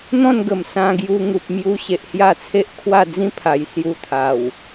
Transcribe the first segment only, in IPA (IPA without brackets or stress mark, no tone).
n̪